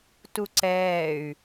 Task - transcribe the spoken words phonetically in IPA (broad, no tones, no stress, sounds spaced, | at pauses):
t u ǀ ɛː y̯